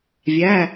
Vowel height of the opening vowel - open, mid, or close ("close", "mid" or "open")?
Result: open